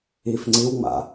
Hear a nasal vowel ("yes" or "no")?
no